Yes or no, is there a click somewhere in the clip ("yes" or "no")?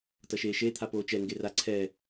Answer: yes